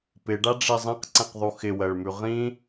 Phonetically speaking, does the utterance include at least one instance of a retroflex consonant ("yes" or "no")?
yes